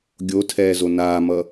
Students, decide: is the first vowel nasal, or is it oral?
oral